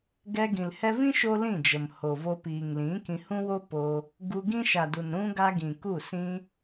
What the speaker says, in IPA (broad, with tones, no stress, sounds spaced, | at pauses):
ɡ ɛ˧ ɡ ĩ˨ l h ɛ˧ v ĩ˦ ʃ o˦ l ĩ˦˨ d͡ʒ ə˨ m h o˨ v o˧ p iː˨ ŋ l ĩ˨˦ k ĩ˧ h ũ˦ w o˦ p o˧ | ɡ u˧ ɡ ĩ˦ ʃ a˨ d u˨ n ɾ ũ˧ ɡ a˧ ɡ ĩ˨ k u˦˨ s ĩ˧